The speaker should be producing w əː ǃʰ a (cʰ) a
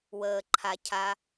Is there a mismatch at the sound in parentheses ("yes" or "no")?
no